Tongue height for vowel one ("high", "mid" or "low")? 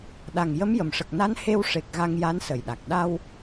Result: low